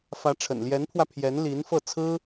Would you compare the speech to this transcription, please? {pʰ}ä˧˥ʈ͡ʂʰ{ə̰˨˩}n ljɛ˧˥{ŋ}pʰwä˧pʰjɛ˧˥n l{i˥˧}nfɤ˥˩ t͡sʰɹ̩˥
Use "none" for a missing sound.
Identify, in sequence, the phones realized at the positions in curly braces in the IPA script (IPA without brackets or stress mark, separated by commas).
f, ə̰˨˩, n, i˧˥